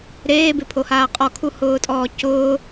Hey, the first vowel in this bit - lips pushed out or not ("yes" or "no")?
no